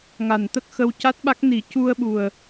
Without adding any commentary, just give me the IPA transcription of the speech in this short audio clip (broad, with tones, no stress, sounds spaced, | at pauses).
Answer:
ŋ a˨˩ n t̪ ə˦˥ k̚ x ə˧ w c a˦˥ t̚ ɓ a˦˥ k̚ n i˨˩˦ c u˧ ə̯ ɓ u˨˩ ə̯